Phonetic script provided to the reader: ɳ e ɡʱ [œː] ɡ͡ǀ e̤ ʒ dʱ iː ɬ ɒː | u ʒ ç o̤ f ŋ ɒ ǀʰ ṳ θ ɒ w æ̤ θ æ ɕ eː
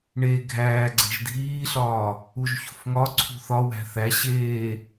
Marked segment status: incorrect: æː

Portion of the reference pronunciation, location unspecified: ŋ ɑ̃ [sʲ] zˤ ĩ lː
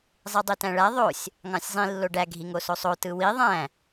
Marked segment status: correct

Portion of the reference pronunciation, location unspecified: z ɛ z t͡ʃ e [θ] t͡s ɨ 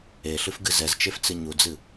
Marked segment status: incorrect: f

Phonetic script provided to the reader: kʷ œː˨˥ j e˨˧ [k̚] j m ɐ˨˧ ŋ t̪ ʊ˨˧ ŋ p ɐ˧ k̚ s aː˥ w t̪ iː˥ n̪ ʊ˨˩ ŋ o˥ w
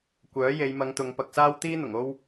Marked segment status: incorrect: none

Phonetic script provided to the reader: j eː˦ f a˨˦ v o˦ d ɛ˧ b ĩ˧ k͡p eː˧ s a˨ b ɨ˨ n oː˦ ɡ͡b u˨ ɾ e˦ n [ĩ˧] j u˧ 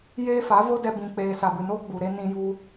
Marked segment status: correct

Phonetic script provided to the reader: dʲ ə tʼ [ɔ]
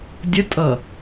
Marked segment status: incorrect: ʌ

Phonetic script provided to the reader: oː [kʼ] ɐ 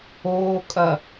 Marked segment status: correct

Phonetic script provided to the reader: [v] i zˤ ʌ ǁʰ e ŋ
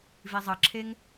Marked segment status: correct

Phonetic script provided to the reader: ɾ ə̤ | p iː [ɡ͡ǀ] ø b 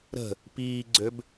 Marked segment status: correct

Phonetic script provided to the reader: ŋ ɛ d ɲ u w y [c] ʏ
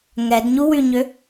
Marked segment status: incorrect: ɲ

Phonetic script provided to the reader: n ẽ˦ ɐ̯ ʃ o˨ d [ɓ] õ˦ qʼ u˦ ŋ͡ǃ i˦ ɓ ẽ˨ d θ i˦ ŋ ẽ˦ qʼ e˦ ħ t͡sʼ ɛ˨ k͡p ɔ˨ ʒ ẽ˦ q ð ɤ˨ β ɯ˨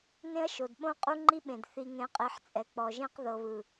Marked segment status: correct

